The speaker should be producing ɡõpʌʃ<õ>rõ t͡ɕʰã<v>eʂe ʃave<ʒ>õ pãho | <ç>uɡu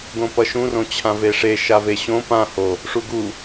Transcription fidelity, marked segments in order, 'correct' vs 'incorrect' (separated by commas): incorrect, correct, incorrect, incorrect